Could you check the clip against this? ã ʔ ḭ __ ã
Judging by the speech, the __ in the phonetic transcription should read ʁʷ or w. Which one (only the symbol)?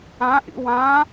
w